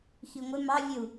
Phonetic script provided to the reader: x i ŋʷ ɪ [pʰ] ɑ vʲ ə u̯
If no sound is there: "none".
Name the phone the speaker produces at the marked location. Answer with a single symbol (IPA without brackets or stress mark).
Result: m